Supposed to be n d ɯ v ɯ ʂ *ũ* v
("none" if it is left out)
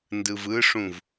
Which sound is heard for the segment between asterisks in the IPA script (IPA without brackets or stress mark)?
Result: ũ